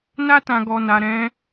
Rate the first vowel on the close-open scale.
open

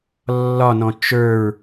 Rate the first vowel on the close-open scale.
open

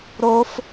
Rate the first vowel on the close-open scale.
mid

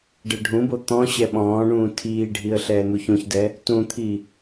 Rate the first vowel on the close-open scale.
mid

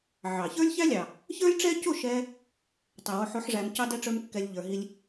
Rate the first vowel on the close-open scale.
open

